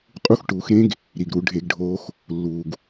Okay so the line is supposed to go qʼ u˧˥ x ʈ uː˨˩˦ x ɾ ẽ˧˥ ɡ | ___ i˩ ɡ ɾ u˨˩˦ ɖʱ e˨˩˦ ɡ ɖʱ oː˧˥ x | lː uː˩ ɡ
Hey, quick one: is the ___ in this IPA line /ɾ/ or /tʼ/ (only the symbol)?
ɾ